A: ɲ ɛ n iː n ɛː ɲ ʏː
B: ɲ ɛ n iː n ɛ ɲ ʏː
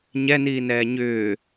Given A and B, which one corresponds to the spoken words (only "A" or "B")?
A